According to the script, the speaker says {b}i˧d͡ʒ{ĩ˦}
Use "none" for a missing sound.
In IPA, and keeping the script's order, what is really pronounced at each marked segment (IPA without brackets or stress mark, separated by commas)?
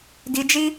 d, i˦